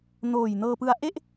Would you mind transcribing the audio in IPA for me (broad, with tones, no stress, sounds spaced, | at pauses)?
n oː˨˩ j n ɤː˧ p ɯ˦˥ a̯ ʔ e˥˩ ʔ